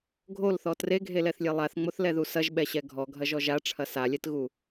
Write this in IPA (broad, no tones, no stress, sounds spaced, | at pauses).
ɡʱ o l θ ɔ t r e ɡʱ e l ɛ θ lʲ e lˠ a θ ŋ͡m o θ l ɛ ð u s ɐ ʒ ɓ ɛ ɕ ɛ ɡʱ ɔ ɡʱ ɐ ʒ ɔ ʒ a ʈ͡ʂʰ ɐ s a lʲ ɛ t ɣ u